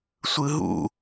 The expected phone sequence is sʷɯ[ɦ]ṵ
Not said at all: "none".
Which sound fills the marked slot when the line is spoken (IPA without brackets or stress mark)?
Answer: ɦ